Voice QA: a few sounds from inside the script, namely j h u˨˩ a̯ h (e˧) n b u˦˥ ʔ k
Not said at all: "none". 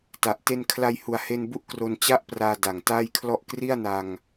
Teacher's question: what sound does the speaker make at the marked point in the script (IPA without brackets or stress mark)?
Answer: e˧